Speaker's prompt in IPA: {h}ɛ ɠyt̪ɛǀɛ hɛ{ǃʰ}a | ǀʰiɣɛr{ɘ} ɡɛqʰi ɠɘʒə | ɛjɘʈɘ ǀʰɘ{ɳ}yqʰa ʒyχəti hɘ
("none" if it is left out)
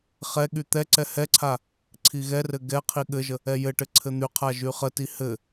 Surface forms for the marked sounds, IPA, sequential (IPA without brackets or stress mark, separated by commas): χ, ǀʰ, ɘ, n̪